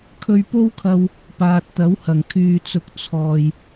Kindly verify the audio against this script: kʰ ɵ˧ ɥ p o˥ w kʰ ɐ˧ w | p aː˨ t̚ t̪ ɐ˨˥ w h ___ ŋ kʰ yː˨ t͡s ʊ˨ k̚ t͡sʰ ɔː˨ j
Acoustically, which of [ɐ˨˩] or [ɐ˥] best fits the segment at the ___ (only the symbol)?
ɐ˨˩